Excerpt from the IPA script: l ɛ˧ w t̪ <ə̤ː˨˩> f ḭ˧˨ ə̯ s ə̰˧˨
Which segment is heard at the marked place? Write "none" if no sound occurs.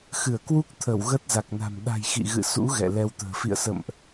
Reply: ə̤ː˨˩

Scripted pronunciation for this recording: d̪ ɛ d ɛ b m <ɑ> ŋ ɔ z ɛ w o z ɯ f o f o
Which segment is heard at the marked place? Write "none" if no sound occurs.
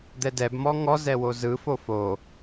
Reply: ɔ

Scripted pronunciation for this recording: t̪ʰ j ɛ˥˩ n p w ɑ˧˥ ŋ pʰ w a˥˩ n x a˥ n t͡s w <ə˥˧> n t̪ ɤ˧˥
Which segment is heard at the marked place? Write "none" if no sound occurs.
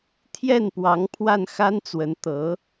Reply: ə˧˥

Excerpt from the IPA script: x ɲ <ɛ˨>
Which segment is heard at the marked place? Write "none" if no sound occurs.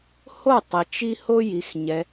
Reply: ɛ˨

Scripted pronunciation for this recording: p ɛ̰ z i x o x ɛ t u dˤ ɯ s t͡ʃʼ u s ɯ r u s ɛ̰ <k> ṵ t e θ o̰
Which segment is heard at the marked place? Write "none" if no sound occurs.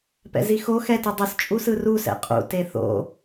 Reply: qʼ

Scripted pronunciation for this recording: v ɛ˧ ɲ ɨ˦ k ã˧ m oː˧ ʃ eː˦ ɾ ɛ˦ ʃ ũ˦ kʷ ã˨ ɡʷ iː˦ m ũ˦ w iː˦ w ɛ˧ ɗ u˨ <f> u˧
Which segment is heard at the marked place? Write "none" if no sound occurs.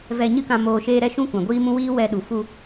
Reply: f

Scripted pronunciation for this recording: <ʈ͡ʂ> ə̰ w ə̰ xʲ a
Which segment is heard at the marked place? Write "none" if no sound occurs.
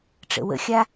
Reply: ʈ͡ʂ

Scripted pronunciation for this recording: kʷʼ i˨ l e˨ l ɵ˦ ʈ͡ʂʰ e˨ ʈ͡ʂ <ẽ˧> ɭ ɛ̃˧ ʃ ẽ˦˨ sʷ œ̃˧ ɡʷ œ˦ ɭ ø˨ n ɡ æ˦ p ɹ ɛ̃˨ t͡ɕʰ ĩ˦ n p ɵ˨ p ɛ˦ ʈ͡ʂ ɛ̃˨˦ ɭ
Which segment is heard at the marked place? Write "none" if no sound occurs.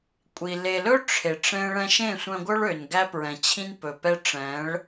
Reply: ẽ˦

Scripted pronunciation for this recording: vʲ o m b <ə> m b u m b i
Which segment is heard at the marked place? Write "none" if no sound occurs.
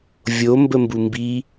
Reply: ə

